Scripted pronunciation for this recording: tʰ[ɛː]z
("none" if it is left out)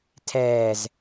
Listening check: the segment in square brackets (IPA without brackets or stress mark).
ɛː